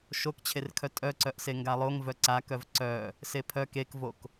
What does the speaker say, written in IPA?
ʃ o k t͡ɕʰ e r kʰ œ tʼ œ ǀ œ ʔ s e ŋ ɡ a lˠ o ŋ v œ ǀ a k œ v ǀ œ | s e pʰ œ k e k v o k

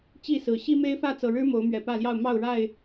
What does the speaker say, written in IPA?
t͡ɕ i˥˨ s ɹ̩˨˩ ɕ i˦ m e˦ ɪ̯ f ä˥˨ t͡s ɤ˨˩ ɻ ɻ̩˦ m o˨˦ ʊ̯ m ɥ ɛ˨˩ p ä˥˨ l j ɑ˥˨ ʊ̯ m ɑ˥˨ ʊ̯ ɻ a˥˨ ɪ̯

